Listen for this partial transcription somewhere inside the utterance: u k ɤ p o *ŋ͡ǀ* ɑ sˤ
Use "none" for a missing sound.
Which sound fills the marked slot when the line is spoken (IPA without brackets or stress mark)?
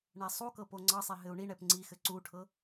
ŋ͡ǀ